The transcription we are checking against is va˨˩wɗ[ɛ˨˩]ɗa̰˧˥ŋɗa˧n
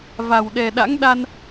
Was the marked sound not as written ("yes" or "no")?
no